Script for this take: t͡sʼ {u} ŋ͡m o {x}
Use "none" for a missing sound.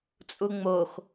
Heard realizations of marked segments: u, x

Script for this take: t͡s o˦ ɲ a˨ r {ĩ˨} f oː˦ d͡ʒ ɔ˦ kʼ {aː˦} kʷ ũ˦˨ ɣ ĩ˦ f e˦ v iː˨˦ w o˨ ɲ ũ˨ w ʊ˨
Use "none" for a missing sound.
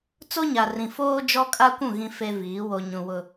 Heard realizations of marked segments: ĩ˨, a˦

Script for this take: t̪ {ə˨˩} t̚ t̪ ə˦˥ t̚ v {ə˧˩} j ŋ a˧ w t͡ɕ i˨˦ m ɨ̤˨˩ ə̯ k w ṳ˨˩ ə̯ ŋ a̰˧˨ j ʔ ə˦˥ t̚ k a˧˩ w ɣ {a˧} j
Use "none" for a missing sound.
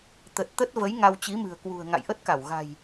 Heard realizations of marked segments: ə˨˩, ə˨˦, a̤˨˩

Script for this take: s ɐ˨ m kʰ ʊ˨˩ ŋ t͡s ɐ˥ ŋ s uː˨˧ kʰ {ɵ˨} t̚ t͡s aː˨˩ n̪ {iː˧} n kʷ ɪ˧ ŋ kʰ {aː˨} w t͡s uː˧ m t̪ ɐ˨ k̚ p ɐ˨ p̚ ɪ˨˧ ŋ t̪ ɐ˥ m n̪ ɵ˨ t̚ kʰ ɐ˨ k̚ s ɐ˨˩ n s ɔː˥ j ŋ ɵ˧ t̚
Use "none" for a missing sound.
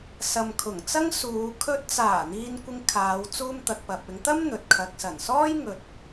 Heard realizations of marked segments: ɵ˧, iː˧, aː˨˧

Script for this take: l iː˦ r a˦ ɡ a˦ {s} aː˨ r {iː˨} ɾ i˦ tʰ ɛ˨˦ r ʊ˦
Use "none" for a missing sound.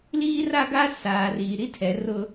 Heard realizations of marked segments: s, iː˨

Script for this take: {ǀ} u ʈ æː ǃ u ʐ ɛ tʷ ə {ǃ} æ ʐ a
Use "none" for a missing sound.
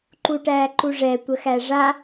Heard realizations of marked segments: ǃ, x

